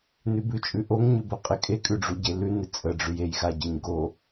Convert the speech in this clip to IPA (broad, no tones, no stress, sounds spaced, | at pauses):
n ʉ b ʉ t͡ʃʼ ʉ ʔ o ŋ ɲ ʉ b ə qʼ ɪ kʼ e kʼ ʉ ɖ͡ʐ u ɟ e l ʉ n ɪ t͡sʼ ə ɖ͡ʐ ʉ j e j x a ɟ ə ɲ ɡ o